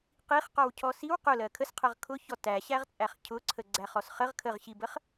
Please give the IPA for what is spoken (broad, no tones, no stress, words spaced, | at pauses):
qiχqɔwcʰɔ siw qʊlɜ kʰəsqʰɜʁ kʰʊçɔ tæɕæʁt͡sʼæχ cʰʊǀʰəɡ͡ǀæχɔs χəʁ kʰəʁɕibəχ